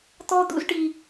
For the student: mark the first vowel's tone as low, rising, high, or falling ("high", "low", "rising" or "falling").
high